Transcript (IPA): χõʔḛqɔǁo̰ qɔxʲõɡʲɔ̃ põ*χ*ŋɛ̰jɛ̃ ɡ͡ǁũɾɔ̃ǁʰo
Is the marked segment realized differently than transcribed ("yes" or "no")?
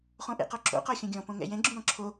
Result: yes